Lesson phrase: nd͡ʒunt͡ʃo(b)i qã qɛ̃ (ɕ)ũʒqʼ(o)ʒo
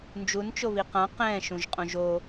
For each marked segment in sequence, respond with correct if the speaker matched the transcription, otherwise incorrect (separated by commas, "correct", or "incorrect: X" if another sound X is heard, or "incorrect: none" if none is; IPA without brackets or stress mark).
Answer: incorrect: β, incorrect: ʃ, incorrect: õ